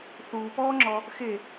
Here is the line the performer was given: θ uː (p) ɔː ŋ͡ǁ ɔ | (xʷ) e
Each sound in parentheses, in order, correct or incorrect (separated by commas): correct, incorrect